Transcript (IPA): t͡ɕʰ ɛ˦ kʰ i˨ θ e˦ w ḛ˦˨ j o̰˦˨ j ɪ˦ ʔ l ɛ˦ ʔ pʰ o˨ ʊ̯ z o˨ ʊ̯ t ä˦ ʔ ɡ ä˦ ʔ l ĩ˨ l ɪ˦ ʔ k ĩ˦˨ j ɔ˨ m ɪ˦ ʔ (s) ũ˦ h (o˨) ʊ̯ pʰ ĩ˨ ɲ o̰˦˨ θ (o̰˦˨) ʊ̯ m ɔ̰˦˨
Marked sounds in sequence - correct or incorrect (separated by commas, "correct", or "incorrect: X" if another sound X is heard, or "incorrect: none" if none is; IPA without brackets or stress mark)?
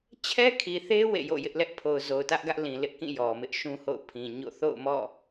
incorrect: ʃ, incorrect: o̰˦˨, correct